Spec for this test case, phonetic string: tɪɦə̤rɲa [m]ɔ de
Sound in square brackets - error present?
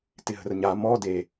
no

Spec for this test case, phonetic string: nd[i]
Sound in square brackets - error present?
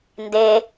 yes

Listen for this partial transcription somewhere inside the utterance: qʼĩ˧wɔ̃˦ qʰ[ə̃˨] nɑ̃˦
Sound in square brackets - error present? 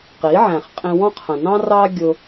no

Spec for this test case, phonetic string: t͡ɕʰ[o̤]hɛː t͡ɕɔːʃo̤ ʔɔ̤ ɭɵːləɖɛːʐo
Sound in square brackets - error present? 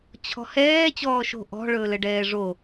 yes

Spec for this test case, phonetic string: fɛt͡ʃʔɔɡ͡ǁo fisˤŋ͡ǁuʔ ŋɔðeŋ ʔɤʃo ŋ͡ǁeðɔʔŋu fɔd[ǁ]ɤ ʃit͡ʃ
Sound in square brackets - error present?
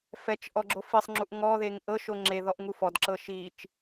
no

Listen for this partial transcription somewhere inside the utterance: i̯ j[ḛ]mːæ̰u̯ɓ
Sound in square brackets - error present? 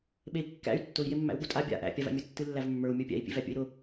yes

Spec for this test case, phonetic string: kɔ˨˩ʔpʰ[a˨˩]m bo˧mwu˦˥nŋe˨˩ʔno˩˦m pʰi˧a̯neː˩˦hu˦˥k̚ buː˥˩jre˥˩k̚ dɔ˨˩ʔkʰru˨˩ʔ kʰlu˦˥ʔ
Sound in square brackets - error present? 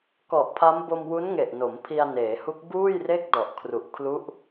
yes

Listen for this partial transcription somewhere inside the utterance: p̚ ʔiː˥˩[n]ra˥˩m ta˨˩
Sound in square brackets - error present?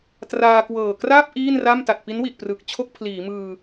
no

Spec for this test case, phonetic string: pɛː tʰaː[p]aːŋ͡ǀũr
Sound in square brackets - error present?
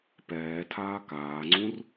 yes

